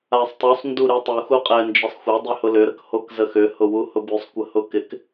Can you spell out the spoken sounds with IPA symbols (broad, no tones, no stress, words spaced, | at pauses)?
asˤtˤusˤ nduɾytˤu xuqʼɛnd͡ʒəsˤxʷa dˤʏhʊlʏ ɾəkhokzəxʏ hʊwuhʊbysˤ kʷəhʊkɪk